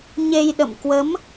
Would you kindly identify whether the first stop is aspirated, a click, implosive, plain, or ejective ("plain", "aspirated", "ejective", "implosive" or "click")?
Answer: implosive